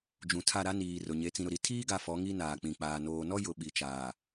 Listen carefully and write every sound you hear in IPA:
d͡ʒ ũ˨ tʰ a˦˨ ɾ a˦ n iː˨ r ʊ˨ ɲ e˨˦ t͡s ĩ˨ ɾ ʊ˨ ɾ i˨˦ tʰ iː˦ ɡ a˨ f ɔ˨˦ ŋ i˦ n aː˨ k͡p ĩ˨ k͡p aː˨ n oː˨ n ɔ˦ j ʊ˨ ɓ i˨ t͡ʃ aː˨

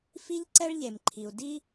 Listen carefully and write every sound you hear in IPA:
f i˥ ʎ ǀ ɛ˥ ɭ ʎ e˩ m ǃʰ i˩ u̯ d i˥

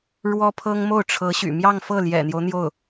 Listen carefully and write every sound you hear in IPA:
ɻ w ɔ˥ pʰ ɤ˥ ŋ m o˥˩ ʊ̯ ʈ͡ʂʰ ɤ˧˥ ɕ y̰˨˩ m j ɑ˥˧ ŋ f ɤ˥˩ l j ɛ̰˨˩ n̪ j o˦ ʊ̯ n̪ j o˥˩ ʊ̯

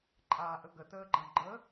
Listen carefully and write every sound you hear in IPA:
ǃʼ aː ʔ ə ɡ ə t əː ɡ͡ǃ ɐ̃ ɡ͡ǃ ə

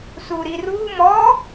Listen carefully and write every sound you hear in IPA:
s u ɾ i r u m ɔ

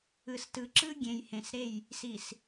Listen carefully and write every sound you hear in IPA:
ɯ˨ s t ɯ˨ ǁ ɯ˦ ɡʲ ẽ˨ j h ẽ˨ s ɾ e˦˨ j | s i˨ s

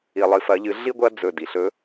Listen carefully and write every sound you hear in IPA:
i˧ lˠ ɨ˧ f ɐ˧˥ ʎ ɨ˧˥ ɮ i˥ ɡʷ ɐ˥ d͡z ɵ˧˩ d i˩ ɬ ɵ˧˥

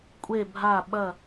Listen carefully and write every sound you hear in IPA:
kʷʼ e˧˩ bʱ a˧˩ ɓ ɐ˧˩

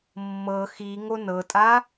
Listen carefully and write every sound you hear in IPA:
mː ɤ x i ŋ o n ɤ tʼ a

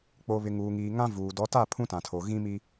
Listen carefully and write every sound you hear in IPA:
k͡p o˨ β ɪ˨ ŋ uː˨ ŋ iː˨ ŋ ã˦ v uː˨ d ɔ˨˦ t a˦˨ pʰ ũ˦ t ã˨ tʰ o˨ ɣ ĩ˦ m i˦

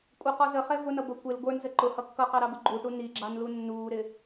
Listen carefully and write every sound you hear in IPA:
kʷʼ ə q ɔ z ə χ ɛ v ʊ n ʌ b ə kʷ ɪ l ɡʷ ə˞ n z ə ǃ ʊ h ʌ kː ʌ q ɑ ɾ ɑ b ʊ ɡ͡ǃ u ʈ u n i ɡ͡ǁ ɑ n l u nː uː ɾ ɪ

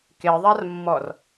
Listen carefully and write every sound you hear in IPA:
k e ðˤ a r mː ɔ r

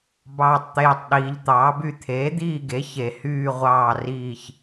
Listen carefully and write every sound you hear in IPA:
b ɑː˨˩ tˤ t̪ eː˨˩ tˤ ɗ iː˩˧ ʎ t̪ ɑː˩˥ b y˦˨ t̪ʰ eː˩˥ d̪ iː˦˨ ɡ e˩˥ ç e˨˩ h yː˦˨ ʁʷ ɑː˦˨ r iː˦˨ ç

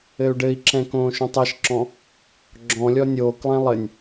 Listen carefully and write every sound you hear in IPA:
ɘ u̯ ɖ ɘ i̯ ǁ ɛ̃ k õː ʃ õ tˤ e ʃ ǁ ɔ̃ | ɡ͡ǁ ɔ̃ lʲ ɔ nʲ oː k lˠ ɛ̃ lˠ ɘ nʲ

